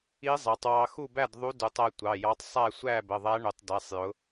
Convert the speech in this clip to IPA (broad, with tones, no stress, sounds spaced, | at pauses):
i˧˥ zˤ æ˩˧ tˤ w ɑ˧ x u˥˨ b æ˥˨ d ðˤ u˧˥ d u˩˧ tˤ æ˧ tʷ ɑ˩˧˩ j ɑ˧˥ tˤ sˤ æ˥˨ sʷ æ˥˨ b ə˩˧˩ ðˤ æ˧˥ ɳ ʊ˩˧ tˤ d æ˩˧˩ sˤ j ʊ˩˧